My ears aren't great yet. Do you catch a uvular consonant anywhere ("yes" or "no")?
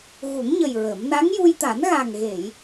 no